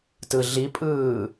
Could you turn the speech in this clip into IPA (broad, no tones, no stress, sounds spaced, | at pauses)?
t ɯ ɮ i pʼ ɯː